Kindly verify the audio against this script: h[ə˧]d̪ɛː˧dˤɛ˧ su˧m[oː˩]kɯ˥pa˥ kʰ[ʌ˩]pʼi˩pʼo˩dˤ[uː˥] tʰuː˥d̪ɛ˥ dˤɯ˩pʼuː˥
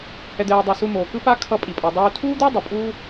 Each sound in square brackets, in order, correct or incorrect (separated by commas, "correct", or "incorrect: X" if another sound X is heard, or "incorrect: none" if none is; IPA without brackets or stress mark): incorrect: ɛ˧, correct, incorrect: ʌ˧, incorrect: uː˧